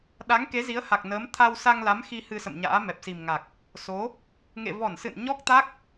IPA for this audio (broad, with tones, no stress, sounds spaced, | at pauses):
ɗ a˨˦ ŋ k e˨˦ z i˨˦ ə̯ h a˨˩ k̚ n əː˨˦ m t̪ʰ a˧ w s a˧ ŋ l a˨˦ m x i˧ h ɨ˧ s ə̰˧˨ m ɲ a̰ː˧˥ m ɛ˨˩ p̚ s i˨˩ m ŋ a˨˩ k̚ | s o˨˦ | ŋ ḛ˧˨ v ɔ˧˩ n s ɨ̰˧˨ n ɲ ɔ˦˥ k̚ t̪ a˦˥ k̚